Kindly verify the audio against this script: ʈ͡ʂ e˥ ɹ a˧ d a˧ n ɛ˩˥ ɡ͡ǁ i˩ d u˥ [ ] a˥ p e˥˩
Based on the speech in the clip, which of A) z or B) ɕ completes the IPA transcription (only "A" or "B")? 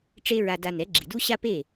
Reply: B